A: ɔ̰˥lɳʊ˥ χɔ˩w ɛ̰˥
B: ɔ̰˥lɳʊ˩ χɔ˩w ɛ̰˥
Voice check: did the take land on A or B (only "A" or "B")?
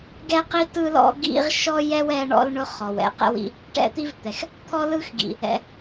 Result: A